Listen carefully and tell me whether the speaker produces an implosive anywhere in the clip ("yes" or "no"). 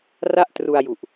no